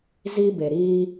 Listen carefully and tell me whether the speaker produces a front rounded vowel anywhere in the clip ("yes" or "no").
no